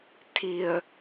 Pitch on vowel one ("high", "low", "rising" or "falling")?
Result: low